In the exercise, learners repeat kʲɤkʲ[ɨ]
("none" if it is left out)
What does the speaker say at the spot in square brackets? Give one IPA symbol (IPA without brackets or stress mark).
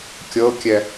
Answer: ɛ